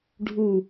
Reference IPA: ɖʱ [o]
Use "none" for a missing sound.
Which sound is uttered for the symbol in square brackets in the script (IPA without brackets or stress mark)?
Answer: u